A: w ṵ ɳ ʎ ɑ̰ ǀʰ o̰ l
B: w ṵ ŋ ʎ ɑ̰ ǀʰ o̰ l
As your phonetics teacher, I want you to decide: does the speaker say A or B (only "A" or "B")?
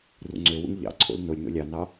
B